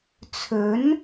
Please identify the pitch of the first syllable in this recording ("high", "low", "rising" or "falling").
rising